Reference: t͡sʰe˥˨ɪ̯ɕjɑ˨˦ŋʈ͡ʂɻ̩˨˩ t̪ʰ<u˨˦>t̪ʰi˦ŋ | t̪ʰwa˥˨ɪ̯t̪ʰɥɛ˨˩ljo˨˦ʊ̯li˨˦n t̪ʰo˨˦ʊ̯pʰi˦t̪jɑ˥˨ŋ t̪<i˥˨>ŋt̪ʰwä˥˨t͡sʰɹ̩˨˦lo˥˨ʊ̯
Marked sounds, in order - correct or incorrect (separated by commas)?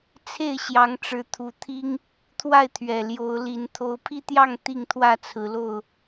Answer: correct, correct